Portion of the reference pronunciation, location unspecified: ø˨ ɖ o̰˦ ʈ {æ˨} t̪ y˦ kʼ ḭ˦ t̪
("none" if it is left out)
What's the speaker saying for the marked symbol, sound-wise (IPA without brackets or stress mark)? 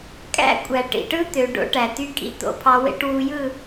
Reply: æ˨